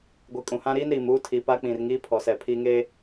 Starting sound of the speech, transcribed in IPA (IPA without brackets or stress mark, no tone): ɡʷ